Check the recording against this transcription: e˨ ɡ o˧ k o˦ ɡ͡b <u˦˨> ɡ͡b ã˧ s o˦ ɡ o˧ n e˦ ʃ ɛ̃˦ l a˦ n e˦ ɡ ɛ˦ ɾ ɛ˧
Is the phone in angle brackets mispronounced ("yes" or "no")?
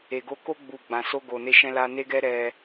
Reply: no